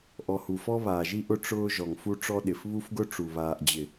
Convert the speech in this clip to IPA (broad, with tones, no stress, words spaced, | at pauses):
ʔɔ˨hu˨fɔ˦ βaː˨ʒi˦ ʔʊ˦ ʈ͡ʂʊː˦ ʒɔ˨ŋfu˦ ʈ͡ʂɔ˦ɗɪ˨f βu˦fɡʊ˦ʈ͡ʂu˨ βaː˨ʔd͡ʑɪ˨